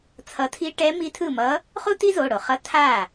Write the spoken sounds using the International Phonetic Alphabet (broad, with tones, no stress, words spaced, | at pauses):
t͡sʰʌ˧˥tʰi˥ ʈɛ˧˥ mi˧˥tʰɯ˥˩mʌ˧˥ | χu˥ti˥zo˩˧˩ ɽo˩χʌ˧˥ tʰa˥˩